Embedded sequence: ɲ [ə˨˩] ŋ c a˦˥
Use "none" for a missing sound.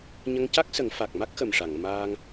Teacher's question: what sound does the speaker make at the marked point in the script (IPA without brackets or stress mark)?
ə˧